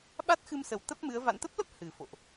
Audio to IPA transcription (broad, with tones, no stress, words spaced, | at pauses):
ɓa˦˥t̚xɨ˧msə˨˩w t̪ə˦˥p̚mɨ˨˦ə̯ va̰˧˨nt̪ə˦˥p̚lə˦˥p̚ hɨ˨˩fo̰˧˨ʔ